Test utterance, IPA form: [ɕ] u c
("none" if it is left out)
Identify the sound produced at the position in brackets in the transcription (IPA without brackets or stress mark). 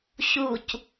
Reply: ɕ